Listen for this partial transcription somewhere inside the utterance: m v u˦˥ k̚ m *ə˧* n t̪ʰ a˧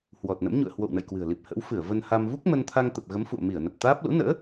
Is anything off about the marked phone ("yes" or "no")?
no